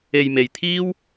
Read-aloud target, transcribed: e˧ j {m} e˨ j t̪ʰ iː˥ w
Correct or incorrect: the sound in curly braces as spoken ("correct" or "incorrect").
correct